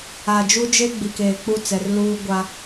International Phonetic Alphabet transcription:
a˨ d͡ʒ u˦ d͡ʒ e˦ ɡ͡b i˨ k eː˨ k͡p u˦˨ t͡s ɛ˨ r l uː˦ ɡʷ a˦

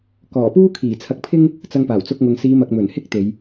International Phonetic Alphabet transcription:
k ɔː˨˩ p uː˥ kʰ iː˨˩ t͡sʰ ɐ˧ k̚ pʰ ɪ˥ ŋ | t͡s ɐ˧ ŋ p aː˨˩ w t͡s ʊ˧ k̚ ŋ ʊ˨ ŋ s iː˨˧ m ɐ˨ k̚ m ɵ˨˩ n h ɪ˥ k̚ t̪ e˨˧ j

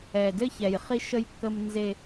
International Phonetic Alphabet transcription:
ɛ˨ d ɘ˦ ç ɛ˨ j χ i˦ ʃ ə˦ j kː ə˦ m n z e˦

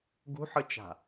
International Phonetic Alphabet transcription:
ɡ ṳ ħ ɯ t͡ʃ a̤

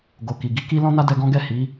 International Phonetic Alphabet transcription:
ɡ o˨ k i˨ ɡ i˨˦ k i˦ l ɔ̃˦ n a˦ d ɛ˧ ɡ ɔ̃˦ ɡ ɛ˦˨ h i˨˦

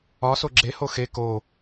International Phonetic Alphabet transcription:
ɒ s o ɡ͡ǁ e h o x e k o

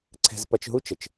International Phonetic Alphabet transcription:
ǀʰ ɛ̤˧ z p ɐ˧ t͡ʃ ɦ u˦ t͡ʃ ə˨ t͡ʃ

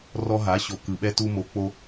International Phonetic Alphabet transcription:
r ɔ˦ ɦ a˨˥ ɕ o˨ k ɯ˨ ɓ ɛ˦ t u˦ m o˨˥ k͡p o˦

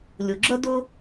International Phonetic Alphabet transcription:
lʲ u˩ ɡ͡ǁ ə˥ d ʊ˥

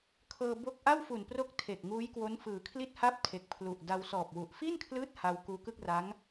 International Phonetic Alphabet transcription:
kʰ ɤː˧ b o˥˩ k̚ ʔ a˥˩ w f u˨˩ n p r o˦˥ k̚ tʰ e˨˩ k̚ ŋ uː˦˥ j k w o˦˥ n f ɯː˩˦ kʰ l i˥˩ t̚ h a˥˩ p̚ tʰ e˨˩ k̚ pʰ l u˨˩ ʔ d a˧ w s ɔː˨˩ p̚ w u˨˩ ʔ f i˥˩ n kʰ l ɯː˦˥ t̚ h a˧ w k uː˧ k ɯ˥˩ k̚ r a˦˥ ŋ

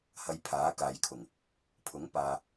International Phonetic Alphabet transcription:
h ɐ˧ j pʰ aː˨˥ k aː˨ j kʰ ʊ˨˩ ŋ | pʰ ʊ˨˥ ŋ p aː˨

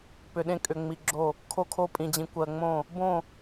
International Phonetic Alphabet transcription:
p ʏ˨ ɗ ẽ˦ kʼ ʏ˨ ŋ͡m i˨ ɡ͡ǁ o˦˨ | kʰ o˦ kʰ o˦ pʼ ĩ˨ d͡ʑ ĩ˨ kʷ ɜ˨ ŋ͡m õ˦˨ | b õ˦˨

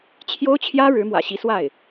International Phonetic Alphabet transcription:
t͡ɕʰ j o˥ ʊ̯ t͡ɕʰ j ä˥ ɻ ɻ̩˧˥ m w ä̰˨˩ ɕ i˧˥ s w a˥˩ ɪ̯

